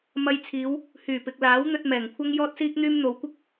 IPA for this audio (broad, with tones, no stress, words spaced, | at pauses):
mɐ˧jt͡sʰiː˨˧w | hyː˨˩pɪ˨k̚laː˨˥wn̪ɵ˧t̚ mɛː˨˩ŋkʷʰɐ˥ŋ jɔː˥t̚siː˥k̚n̪yː˥m n̪o˨˧wkʷɪ˥k̚